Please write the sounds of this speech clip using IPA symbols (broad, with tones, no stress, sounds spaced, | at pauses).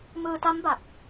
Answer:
m ɯː˧ t a˦˥ m b a˨˩ k̚